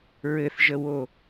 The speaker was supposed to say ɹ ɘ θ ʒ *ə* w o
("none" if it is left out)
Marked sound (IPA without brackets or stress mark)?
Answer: ə